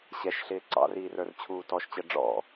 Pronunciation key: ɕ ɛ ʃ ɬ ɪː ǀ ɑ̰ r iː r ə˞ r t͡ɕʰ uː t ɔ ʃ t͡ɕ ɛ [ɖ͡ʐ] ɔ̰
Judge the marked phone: correct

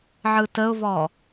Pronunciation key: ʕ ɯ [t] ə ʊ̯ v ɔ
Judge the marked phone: correct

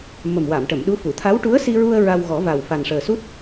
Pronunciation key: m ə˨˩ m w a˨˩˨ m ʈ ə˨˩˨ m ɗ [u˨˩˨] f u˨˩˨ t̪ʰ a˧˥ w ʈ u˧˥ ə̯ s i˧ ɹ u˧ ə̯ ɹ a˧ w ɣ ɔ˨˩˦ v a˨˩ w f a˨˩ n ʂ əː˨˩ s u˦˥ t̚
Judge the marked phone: incorrect: u˧˥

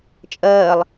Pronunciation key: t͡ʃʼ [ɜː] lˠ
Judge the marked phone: correct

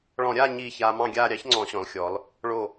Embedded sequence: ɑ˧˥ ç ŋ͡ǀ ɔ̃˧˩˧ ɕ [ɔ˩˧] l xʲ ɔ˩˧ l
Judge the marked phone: incorrect: ɔ̃˩˧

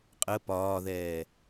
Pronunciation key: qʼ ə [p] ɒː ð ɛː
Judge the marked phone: correct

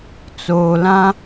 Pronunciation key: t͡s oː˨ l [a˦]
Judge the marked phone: incorrect: ã˦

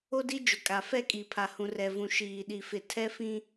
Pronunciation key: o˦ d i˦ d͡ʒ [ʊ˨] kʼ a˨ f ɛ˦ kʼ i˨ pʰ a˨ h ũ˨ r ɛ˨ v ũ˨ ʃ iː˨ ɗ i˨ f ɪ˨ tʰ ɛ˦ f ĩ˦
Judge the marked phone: correct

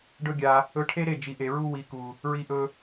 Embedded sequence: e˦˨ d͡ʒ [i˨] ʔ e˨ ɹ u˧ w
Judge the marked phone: correct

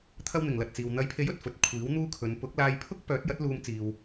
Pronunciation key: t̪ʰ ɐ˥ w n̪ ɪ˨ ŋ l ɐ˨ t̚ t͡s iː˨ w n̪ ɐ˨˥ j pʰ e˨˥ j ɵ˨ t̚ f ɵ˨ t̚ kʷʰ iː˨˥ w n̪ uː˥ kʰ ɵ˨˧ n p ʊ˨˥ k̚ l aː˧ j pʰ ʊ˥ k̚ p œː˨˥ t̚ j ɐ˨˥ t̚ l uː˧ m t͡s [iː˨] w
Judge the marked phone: correct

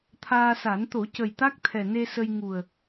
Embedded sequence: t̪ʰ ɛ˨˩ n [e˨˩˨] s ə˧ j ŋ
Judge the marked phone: incorrect: e˧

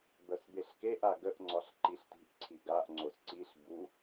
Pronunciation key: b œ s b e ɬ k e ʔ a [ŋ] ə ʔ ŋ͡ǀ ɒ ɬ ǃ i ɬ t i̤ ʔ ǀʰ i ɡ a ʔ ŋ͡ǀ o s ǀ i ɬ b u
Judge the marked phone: incorrect: ɡ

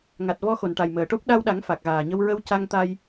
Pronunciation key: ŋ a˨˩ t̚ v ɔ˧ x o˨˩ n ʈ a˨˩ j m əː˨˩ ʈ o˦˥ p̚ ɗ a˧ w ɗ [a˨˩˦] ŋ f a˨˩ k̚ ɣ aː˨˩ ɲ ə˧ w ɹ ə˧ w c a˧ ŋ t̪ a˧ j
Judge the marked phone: correct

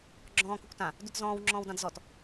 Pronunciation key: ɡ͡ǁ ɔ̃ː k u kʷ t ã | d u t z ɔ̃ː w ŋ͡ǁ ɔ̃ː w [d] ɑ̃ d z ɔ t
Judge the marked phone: correct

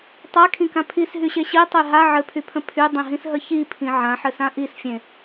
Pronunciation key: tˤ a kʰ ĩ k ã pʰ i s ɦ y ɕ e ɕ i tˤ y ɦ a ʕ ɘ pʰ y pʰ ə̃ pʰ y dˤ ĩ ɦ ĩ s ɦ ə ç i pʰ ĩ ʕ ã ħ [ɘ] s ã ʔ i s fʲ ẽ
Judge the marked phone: correct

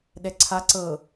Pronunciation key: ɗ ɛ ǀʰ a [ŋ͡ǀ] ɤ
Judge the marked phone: incorrect: ǀ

